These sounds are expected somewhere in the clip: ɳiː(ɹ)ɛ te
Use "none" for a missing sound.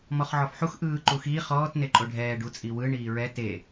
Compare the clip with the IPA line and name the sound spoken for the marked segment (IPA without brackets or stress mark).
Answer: ɹ